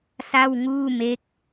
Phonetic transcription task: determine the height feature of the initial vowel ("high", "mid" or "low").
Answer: low